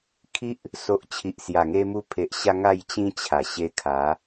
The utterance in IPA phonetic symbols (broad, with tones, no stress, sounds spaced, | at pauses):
kʰ i˦ ʔ | s o˨ ʔ t͡ɕʰ i˨ ʔ s j a˨˩ ŋ e˧ m u˧ pʰ e˨ ʔ ɕ a˧ ŋ a˥˧ j t͡ɕ ĩ˦ t͡ɕʰ a˨˩ ɕ e˧ kʰ a˨˦